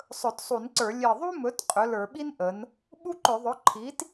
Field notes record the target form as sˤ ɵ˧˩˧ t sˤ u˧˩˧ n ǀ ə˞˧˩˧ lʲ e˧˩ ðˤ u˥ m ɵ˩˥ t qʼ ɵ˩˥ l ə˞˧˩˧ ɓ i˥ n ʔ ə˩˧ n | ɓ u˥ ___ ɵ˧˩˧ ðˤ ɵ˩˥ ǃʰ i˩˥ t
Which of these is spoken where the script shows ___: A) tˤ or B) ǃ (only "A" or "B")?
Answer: B